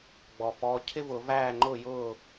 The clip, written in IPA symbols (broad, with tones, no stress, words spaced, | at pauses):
ɡ͡bɔ˩fɔ˩˧˩ cʰɪ˥vʊ˨˩˦væː˥˩ŋ͡ǃʊː˥˩ jʊː˥˩